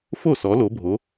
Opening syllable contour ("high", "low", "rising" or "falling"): falling